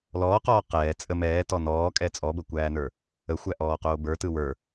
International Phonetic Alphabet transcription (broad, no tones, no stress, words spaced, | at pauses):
lɔːqɔː qɛː t͡sʼə mɛːtɔ nɔːkʼɛ t͡sʼɔbəkʷæːnə˞ | əxʷæʔɔːqoː bə˞tɯ wə˞